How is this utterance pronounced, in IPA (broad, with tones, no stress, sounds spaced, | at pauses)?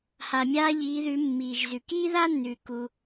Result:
h a˩ mʲ aː˧ ʎ iː˩˧ ð ʉ˩˧ mː iː˩ ʒ z ʉ˩ k iː˥ ð a˥ nː ʉː˩ k u˩